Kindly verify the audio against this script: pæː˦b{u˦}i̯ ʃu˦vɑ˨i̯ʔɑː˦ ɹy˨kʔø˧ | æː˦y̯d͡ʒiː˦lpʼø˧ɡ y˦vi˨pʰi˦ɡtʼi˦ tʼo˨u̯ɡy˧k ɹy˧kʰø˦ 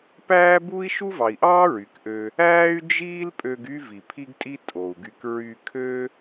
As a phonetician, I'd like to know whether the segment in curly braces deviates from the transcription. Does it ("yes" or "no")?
no